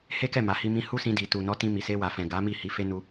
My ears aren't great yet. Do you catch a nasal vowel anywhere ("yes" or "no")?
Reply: yes